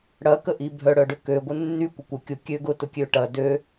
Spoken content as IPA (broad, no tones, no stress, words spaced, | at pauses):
ɽɐkəʔi bʱœɽœɖʏ køɡʷə nːy kʷəkʷə kʲʊ kʲø ɡʊtʊ kʲøʈɐ dø